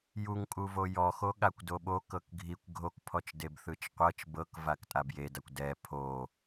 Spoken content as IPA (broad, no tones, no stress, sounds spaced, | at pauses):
j u ŋ kʼ u v o j ɔ x o ɠ a kʷ d o ɓ o k ɤ k ɡʱ i kʷ ɡʱ o k pʰ ɔ t͡ʃ d e b θ ɯ t͡ʃ qʷ ɤ t͡ʃ b ɤ k v a k tʼ a b j e d a kʷ d ɛ pʰ o